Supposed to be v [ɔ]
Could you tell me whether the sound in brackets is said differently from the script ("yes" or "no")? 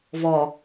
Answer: no